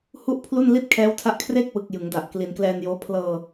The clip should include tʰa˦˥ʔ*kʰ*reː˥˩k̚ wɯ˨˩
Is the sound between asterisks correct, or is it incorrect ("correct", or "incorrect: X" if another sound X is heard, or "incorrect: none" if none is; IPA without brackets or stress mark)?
correct